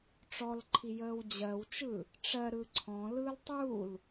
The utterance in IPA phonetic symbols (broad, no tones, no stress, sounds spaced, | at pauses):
ʈ͡ʂ ɔ l ǃʰ i j əː w d͡ʑ ɜ w t͡ʃ ɯ | ʈ͡ʂ ɜ ɾ ɯ ǀʰ ɔ̃ l ɯː l tˤ u l